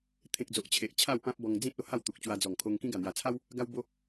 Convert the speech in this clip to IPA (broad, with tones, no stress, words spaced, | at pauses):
t̪ʰẽ˨k̚d͡zo˨ʔ t͡ɕʰe˨ʔt͡ɕʰa˥˧wpã˦p̚ bɔ˧ŋd͡zĩ˦t̚o˧ ha˥˧wt̪u˨k̚t͡ɕwa˧d͡zɔ˨˩ŋ kʰo˧ŋkĩ˦ ɡa˨˩n̪ja˨˩t͡sʰa˦w | ɡa˦wbo˦